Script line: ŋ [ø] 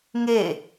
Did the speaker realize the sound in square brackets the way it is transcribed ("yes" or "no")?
no